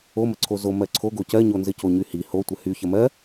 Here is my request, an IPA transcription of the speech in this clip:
o m ə ǀʰ o z o m ɜ ǀʰ o ɡ o c ɜ ɲ o n z ɘ c o ɲ y h i h o tʷ ɘ h y ç ə m ɜ

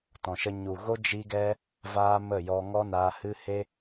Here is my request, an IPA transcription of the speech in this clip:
t ɔ̃˨ ʃ ə˧ ɲ u˨ ɣ o˦ d͡ʒ i˦ ɡ ɛ˦ | v aː˦ m ə˦˨ j ɔ˧ ŋ ɔ˦ n aː˧ h ɨ˦ h e˦

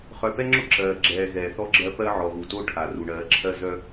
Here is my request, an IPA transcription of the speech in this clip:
χ œ˨ p ɛ˦ ŋ͡ǁ ʊ˦ ǁ ɜː˨ ɡ͡ǁ ɛː˨ ɣ ɛː˨ θ ɔ˦ ɡ͡ǁ ɜ˦ p ɜ˦ ʕ ɔ˨ ɣ u˨ t o˦ ʈʰ a˨ r u˨ ɳ ɜː˨˦ ǁʰ ɜ˦ z œ˦

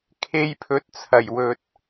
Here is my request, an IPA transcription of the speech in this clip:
kʰ e˧ j pʰ ɵ˨˥ t̚ t͡sʰ ɐ˨˩ j w ɵ˨ t̚

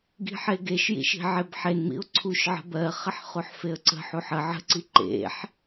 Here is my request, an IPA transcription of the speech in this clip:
ɡ i̤ ħ e ɡ e ʃ j ḭ ʃ i̤ ʕ e b ħ e n m ḭ ʊ̯ ǀʰ u ʃ ʕ ə̤ b ɜ χ ə ħ χ u ħ f e ə̯ ǀ ə̤ ħ u ħ ə ʕ ə̤ ǀ i ǃ ḛ ħ

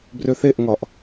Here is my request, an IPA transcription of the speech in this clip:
b r ø θ e ʔ ŋ ɒ ʔ

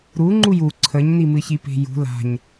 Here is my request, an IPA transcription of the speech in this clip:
ɾ u ŋ͡ǃ u j u ǀʰ ə ɲ n i m ɨ ç i p e̤ j ṳ l a̤ ɲ

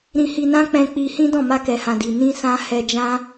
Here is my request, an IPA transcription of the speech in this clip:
ɾ ĩ˧ h i˧ n ã˦ k͡p ɛ̃˧ k͡p i˧ h ĩ˦ d ɔ̃˦˨ m a˧ k ɛ˨ h ã˨ d i˨ n ĩ˧ s ã˧ h ɛ˧ d͡ʒ ã˦

